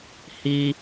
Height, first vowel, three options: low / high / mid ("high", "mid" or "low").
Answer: high